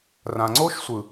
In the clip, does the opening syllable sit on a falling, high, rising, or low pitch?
low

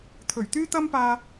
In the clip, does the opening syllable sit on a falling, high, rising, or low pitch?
low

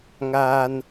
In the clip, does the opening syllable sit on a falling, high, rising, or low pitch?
low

